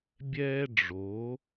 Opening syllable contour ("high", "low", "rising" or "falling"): high